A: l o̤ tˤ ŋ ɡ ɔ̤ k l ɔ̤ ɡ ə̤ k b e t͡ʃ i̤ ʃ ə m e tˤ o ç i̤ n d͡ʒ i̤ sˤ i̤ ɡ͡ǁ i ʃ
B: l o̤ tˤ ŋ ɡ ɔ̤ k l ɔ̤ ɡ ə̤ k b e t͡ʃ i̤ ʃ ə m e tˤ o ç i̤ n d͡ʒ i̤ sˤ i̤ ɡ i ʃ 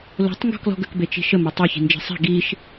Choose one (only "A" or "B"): B